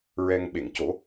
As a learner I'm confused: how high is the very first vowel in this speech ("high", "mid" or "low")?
mid